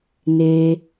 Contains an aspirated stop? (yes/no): no